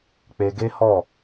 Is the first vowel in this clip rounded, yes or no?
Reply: no